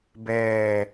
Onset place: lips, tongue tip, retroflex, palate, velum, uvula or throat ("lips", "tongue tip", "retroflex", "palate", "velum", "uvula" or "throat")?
lips